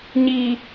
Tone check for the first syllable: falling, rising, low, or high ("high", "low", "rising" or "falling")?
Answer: low